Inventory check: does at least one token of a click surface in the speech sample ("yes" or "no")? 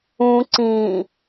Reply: yes